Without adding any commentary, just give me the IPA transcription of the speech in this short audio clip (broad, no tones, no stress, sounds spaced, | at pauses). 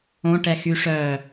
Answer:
õ ʈ ɛ x y ʂ œ